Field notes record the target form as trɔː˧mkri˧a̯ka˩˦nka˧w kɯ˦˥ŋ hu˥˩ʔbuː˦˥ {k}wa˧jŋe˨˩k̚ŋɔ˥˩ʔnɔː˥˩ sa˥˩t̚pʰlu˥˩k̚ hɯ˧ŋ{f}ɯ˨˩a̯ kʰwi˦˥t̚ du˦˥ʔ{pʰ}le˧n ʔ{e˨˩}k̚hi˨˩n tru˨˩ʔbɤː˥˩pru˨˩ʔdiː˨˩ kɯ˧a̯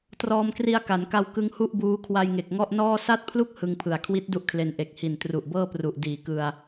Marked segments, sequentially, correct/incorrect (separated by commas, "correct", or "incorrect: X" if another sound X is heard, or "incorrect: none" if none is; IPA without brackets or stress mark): incorrect: kʰ, incorrect: pʰ, incorrect: kʰ, correct